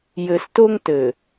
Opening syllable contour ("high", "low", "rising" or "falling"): low